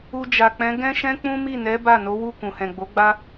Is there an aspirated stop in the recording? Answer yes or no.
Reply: no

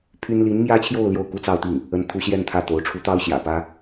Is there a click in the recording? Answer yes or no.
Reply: no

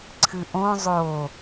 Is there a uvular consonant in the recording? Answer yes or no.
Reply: no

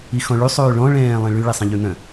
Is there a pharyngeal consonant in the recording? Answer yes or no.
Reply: no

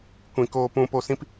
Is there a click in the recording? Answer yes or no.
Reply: no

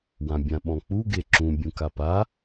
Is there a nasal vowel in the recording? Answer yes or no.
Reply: yes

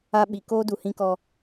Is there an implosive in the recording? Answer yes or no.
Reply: yes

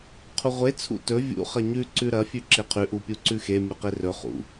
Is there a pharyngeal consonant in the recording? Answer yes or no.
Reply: no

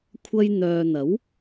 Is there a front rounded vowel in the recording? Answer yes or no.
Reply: yes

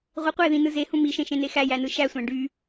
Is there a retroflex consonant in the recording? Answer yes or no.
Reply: yes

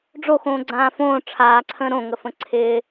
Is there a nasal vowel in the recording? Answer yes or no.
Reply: yes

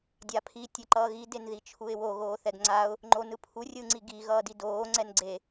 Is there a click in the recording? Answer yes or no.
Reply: yes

